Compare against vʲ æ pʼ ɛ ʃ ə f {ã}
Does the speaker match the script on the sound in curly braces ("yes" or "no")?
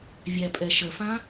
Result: yes